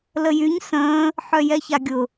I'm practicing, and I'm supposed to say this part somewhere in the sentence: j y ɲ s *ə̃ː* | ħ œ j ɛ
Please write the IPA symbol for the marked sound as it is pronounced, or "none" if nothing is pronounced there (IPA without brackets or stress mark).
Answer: ə̃ː